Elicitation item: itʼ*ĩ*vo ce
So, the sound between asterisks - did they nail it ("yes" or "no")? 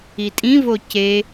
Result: yes